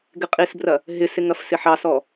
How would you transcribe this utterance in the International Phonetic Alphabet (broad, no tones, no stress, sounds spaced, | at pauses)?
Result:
ɡ ɪ qʼ i s b r ɐ | ɦ ɪ s ɪ ŋ ɐ f s ɪ ħ ɑ s ɔ